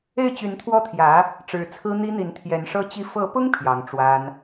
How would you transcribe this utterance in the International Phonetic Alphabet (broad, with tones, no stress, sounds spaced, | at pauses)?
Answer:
e˥˩ ɪ̯ t͡ɕ y˧˥ n t̪ʰ w ɔ˥˩ t̪ʰ j ä˧˥ | ʈ͡ʂ ɻ̩˧˥ t͡sʰ ɹ̩˥ n̪ i˥ n̪ i˧˥ n t̪ʰ j ɛ˧˥ n ʂ ɤ˥ t͡ɕ i˥˩ f ɤ˧˥ p ʊ˥ ŋ pʰ j ɑ˧˥ ŋ ʈ͡ʂ w a˥ n